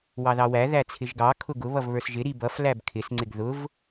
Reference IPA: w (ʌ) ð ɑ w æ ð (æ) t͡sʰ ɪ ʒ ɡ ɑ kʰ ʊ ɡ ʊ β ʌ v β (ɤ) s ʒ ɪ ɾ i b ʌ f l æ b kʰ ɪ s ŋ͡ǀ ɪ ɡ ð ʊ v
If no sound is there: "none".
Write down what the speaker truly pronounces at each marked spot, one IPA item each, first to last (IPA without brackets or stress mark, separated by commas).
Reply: ɑ, æ, ə˞